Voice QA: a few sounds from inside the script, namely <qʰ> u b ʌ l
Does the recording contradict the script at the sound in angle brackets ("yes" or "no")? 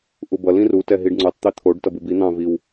yes